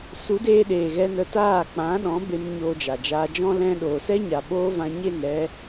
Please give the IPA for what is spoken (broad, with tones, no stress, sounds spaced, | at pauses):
s u˨˦ d eː˧ ɗ eː˨ ɣ ɛ˧ n ə˧ t aː˦˨ k͡p ã˨˦ ɗ ɔ̃˨˦ b e˧ m ɲ oː˧ d͡ʒ a˨ d͡ʒ aː˧ d͡ʒ ɔ̃˦ l ɛ̃˧ ɗ oː˨ s ɛ˦ ɲ a˨ ɓ oː˦ v ã˧ ɲ e˦˨ n ɾ ɛ˧